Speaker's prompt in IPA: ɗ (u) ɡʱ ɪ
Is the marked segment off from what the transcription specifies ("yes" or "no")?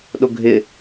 yes